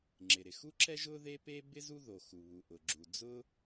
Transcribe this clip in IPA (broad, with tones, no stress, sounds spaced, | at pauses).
ŋ͡ǁ ɪ˩ ɾ ɪ˩ x u˥ ǁ ɛ˥ ʒ ʊ˥ ð e˥ p e˥ b ɪ˥ z u˥ ð o˩ x u˩ β u˩ ʔ ʊ˩ ɡ͡ǁ u˩ d͡z ʊ˥